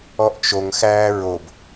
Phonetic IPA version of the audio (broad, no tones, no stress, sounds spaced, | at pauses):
ɔ ʔ t͡ʃ o ŋ x æː ɹ o b